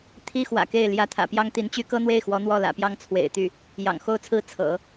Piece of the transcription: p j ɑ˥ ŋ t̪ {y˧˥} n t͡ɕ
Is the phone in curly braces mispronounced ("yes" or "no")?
yes